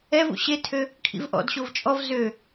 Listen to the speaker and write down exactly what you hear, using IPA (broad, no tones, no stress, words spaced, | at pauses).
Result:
ɛvṵ ɕetʰø | kʰḭvʔɔ̰d ɕovt͡ʃʼɔv zø